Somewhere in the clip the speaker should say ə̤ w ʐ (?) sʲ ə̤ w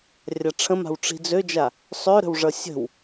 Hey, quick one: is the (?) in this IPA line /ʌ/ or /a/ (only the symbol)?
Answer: ʌ